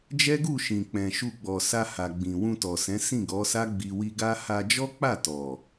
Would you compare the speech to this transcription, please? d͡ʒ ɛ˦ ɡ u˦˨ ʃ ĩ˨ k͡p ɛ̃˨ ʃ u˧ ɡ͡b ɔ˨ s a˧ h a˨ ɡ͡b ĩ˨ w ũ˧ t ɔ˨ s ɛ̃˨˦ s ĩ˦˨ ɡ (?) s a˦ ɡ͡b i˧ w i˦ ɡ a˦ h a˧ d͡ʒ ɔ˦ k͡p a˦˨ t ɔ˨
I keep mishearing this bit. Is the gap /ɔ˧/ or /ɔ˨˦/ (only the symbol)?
ɔ˨˦